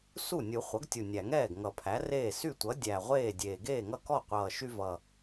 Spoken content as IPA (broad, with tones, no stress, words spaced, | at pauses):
su˥˩nʲu˨˩˦ χʷʌ˩˥ɡtʲu˨˩nʲæ˨˩˦ŋɛː˥˩ɡ ŋʌ˨˩˦pʰæ˩˥reː˥˩ sy˥˩tʷʌ˩˥ dʲæ˨˩ʁʷeː˥˩dʲeː˨˩ ɡeː˥˩ŋʌ˥˩kɔ˥˩qʷʌː˨˩ ʃy˦vʌ˨˩